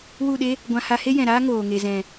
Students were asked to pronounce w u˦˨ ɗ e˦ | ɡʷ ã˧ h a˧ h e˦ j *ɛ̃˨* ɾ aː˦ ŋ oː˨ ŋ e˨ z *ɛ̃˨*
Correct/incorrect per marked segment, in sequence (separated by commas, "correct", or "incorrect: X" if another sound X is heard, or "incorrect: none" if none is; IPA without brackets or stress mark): correct, correct